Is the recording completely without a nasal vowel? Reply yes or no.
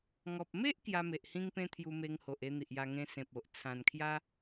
no